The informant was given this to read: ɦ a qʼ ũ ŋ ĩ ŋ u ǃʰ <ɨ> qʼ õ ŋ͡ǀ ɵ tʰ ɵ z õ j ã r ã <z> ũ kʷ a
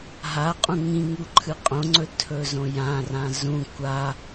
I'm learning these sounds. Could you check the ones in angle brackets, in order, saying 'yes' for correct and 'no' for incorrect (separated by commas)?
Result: yes, yes